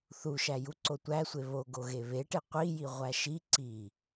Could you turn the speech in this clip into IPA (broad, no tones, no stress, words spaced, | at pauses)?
θuʃæ juǀotʷæsʷe βoɡo ɣeβeʈe qʷiji ʁʷæʃi ǀi